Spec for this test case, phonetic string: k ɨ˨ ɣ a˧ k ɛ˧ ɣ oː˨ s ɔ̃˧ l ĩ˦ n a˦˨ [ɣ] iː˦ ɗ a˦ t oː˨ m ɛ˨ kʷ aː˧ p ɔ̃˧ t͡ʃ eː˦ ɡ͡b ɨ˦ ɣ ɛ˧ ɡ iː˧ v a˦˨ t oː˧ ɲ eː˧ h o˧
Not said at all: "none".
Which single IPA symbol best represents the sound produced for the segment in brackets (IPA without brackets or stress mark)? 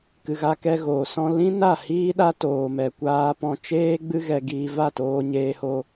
h